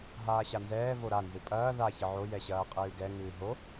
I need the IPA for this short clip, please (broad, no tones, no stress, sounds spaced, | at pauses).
ɦ aː ɕ a n z ɛː v o ɾ a n z ɨ pʼ ɐː ð a ç ɘ ʕ o j ɛ ɕ ɐː qʼ ɨː ɡ ɛ ŋ ɨː ɦ o